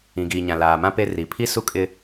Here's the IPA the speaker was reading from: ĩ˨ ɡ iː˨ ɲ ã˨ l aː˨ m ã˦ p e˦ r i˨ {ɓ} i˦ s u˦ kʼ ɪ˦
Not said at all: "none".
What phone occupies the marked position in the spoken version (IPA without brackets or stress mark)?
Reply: pʰ